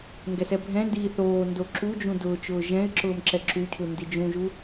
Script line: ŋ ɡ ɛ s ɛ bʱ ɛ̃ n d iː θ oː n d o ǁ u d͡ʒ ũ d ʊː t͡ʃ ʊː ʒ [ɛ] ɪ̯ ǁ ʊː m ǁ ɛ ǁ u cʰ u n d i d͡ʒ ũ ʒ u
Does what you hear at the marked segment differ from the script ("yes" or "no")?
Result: yes